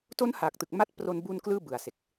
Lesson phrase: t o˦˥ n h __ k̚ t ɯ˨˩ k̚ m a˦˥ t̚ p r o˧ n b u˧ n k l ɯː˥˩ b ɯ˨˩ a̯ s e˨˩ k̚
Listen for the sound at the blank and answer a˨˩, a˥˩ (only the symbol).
a˨˩